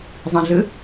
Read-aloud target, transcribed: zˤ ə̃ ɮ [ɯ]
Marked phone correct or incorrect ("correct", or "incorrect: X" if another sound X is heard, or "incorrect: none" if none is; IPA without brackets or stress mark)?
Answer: correct